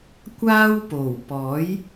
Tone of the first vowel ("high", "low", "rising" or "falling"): high